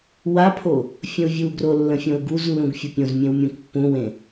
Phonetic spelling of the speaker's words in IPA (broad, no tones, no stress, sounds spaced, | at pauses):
w a pʰ o | fʲ ə̃ u̯ vʲ u ɡ r o lː ə̃ fʲ õ u̯ ɡ u z lː ũ ɡ fʲ ɤ pʲ õ z mʲ ẽ w mʲ ũ k pː ũ w ẽ